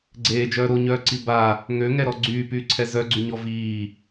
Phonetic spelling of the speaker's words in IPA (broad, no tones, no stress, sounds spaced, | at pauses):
ɡ͡ǀ eː d͡ʒ œː ɾ o ɲ œː ǀ i b a | ŋ ø ŋ ɛ ɾ ɔ ɡ͡ǀ yː p yː ǀʰ ɛ z œ ɡ͡ǀ y ɲ ɔ v iː